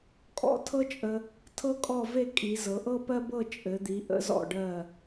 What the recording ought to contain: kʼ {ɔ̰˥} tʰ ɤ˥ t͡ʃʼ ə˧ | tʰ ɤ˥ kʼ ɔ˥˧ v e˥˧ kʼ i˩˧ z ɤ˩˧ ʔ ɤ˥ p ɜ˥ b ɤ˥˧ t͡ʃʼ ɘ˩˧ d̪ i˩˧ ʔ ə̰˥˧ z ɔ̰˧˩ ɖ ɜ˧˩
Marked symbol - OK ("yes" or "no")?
yes